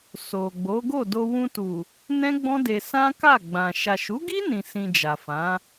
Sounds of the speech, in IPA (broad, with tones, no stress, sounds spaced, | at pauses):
s o˨ ɡ͡b o˨˦ ɡ o˦˨ d o˧ w ũ˧ t u˨ | n ɛ̃˦ ɡ͡b ɔ̃˦ d e˧ s ã˦ k a˦˨ ɡ͡b ã˨ ʃ a˨ ʃ u˨˦ ɡ i˦ n ĩ˧ s ĩ˧ d͡ʒ a˨ f ã˨˦